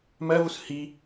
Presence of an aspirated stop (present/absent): absent